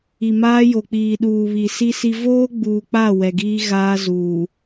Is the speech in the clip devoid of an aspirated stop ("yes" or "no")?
yes